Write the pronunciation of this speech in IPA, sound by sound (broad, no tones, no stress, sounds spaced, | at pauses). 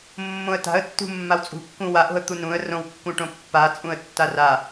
mː õ ə̯ t a̤ ə̯ tː ṳ mː a w t͡sʼ ṳ kː ũ w a ʔ o̤ ə̯ t̪ u n ũ ə̯ r õ w kː ũ ʈ õ pː a t͡sʼ ũ ə̯ tː a r a